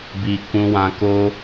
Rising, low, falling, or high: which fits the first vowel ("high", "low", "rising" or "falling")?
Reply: low